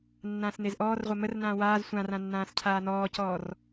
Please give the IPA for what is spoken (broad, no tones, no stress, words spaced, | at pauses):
nːãːsnezʔɔːrʁʷe mərnãː waːz sʷãrã nːãːscʰaːnɔːcɔːr